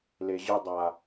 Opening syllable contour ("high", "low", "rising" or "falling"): low